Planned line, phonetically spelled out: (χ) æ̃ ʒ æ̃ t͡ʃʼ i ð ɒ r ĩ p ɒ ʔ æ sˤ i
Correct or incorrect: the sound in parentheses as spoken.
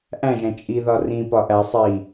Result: incorrect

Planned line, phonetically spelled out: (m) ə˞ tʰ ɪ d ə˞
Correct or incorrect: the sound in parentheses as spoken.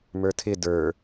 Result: correct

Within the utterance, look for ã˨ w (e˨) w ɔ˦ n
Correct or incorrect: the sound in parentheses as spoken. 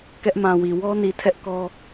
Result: incorrect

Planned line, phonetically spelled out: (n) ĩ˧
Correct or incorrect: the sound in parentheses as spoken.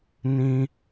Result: correct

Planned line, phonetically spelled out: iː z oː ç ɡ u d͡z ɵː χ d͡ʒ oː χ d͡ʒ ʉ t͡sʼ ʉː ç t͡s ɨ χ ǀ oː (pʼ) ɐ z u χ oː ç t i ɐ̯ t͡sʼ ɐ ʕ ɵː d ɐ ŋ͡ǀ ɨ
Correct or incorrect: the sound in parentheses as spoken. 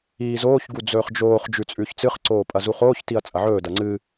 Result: correct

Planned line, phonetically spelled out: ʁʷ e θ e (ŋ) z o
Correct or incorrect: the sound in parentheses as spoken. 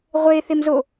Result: incorrect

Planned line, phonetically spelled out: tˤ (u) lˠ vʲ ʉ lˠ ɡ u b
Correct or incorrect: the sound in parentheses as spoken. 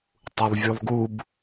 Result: correct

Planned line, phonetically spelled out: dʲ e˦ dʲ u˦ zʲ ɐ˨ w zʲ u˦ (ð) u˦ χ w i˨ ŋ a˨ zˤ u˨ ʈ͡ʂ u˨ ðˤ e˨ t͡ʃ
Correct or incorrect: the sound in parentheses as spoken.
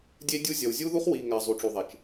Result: correct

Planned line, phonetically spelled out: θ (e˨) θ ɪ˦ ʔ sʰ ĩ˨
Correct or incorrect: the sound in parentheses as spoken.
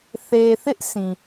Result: correct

